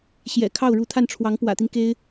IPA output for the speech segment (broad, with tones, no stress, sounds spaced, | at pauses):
ɕ j ɛ̰˨˩ kʰ ɑ˥˩ ʊ̯ ɻ u˧˥ t̪ʰ a˥˩ n ʈ͡ʂʰ w ɑ˧˥ ŋ p w ä̰˨˩ t̪ i˦ n k e˥ ɪ̯